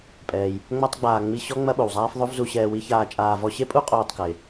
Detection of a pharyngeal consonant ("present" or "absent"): absent